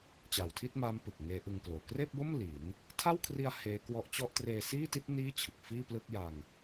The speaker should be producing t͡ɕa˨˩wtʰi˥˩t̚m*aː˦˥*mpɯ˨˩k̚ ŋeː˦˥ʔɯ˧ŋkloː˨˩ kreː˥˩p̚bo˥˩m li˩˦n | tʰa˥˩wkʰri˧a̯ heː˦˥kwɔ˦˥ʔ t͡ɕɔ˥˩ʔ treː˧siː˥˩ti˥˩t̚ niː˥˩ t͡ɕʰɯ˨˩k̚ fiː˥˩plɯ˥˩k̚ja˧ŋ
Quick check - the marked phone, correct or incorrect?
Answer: correct